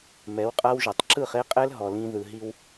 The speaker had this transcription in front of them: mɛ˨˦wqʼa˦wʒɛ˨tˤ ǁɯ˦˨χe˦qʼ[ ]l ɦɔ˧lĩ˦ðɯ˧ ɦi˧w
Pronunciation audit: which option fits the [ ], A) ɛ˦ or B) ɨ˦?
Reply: A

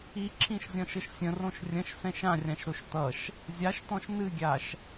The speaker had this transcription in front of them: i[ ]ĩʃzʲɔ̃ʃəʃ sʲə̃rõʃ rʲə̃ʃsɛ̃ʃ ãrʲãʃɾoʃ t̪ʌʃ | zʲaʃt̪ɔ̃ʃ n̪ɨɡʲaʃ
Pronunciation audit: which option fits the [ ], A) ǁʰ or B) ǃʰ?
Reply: A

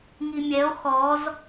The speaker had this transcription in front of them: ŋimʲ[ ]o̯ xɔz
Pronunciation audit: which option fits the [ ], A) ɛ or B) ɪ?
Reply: A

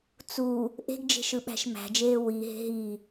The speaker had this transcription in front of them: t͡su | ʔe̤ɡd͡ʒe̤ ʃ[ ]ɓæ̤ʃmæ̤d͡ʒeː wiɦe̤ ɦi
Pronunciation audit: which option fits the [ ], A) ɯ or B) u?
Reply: A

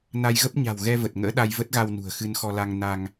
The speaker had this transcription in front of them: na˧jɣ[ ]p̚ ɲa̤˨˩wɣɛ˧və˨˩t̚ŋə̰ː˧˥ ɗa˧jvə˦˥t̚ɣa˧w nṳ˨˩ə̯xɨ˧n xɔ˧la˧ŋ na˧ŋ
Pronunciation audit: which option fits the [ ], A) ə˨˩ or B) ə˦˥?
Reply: B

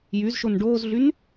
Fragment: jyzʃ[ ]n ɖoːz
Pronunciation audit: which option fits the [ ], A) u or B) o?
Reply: B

